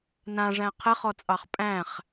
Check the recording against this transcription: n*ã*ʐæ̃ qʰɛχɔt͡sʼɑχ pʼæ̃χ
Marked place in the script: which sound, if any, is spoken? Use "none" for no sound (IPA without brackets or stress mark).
ã